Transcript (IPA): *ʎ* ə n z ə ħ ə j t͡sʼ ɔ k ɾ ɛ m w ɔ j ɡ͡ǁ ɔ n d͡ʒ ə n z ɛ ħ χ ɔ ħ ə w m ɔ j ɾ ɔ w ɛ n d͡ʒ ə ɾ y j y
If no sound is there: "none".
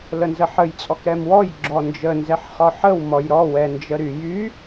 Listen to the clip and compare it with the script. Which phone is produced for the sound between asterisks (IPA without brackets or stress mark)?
l